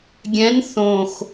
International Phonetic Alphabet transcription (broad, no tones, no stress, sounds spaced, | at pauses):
ɡʲ ɛ̃ n θ õ x